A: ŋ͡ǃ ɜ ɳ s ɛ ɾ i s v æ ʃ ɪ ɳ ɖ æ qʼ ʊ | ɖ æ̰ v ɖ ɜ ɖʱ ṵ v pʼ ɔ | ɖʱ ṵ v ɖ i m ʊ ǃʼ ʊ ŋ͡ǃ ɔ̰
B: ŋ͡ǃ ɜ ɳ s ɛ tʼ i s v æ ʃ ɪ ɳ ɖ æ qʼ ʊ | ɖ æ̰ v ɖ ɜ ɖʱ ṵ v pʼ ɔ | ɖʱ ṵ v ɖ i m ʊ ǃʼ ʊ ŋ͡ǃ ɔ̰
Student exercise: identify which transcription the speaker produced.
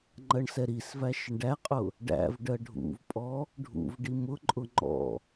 A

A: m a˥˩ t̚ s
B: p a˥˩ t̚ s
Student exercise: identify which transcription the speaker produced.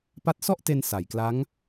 B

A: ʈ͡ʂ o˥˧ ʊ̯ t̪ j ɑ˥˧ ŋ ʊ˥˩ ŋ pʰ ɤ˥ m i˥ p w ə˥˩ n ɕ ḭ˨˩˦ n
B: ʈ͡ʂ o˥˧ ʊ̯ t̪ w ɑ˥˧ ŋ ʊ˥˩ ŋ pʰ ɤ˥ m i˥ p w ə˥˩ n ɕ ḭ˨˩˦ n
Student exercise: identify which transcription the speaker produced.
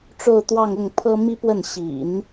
B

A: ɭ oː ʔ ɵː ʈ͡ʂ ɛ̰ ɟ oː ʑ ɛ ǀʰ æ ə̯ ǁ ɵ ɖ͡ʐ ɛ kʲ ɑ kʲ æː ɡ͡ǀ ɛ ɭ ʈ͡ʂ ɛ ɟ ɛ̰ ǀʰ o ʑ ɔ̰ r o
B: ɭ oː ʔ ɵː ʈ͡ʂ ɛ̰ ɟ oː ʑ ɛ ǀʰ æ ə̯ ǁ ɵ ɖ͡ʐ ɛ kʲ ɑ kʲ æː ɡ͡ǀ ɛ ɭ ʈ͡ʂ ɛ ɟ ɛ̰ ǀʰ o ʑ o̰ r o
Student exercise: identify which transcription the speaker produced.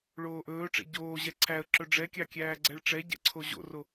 B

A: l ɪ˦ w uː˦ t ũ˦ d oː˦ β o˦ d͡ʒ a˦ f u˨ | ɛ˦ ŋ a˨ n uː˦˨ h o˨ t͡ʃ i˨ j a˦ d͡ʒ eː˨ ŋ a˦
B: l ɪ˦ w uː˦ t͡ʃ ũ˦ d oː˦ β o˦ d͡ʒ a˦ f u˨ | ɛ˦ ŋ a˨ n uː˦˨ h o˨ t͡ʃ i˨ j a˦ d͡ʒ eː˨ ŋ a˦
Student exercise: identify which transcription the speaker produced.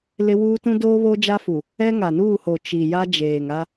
A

